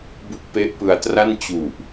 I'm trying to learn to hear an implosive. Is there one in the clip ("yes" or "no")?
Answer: no